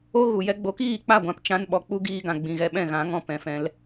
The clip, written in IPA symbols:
o˦ɣu˨ jɛ˧ɡ͡bo˨˦kiː˦˨k͡pa˦˨ ɡʷã˨p t͡ʃã˧n ɓɔ˨k͡pu˦ ɡiː˧ɡã˨ɡ͡bĩ˨ ɣɛ˧ɓɛ̃˦˨ɣã˨˦ŋɔ̃˧ pɛ̃˨fɛ̃˧l

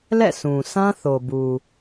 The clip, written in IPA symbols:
lɛ̰˦˨sʰũ˨ sã˦θo˨bu˨

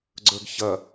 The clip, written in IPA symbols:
ɡ͡ǀə˞ɡçɐ

